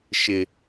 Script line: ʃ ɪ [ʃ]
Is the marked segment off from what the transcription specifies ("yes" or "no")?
yes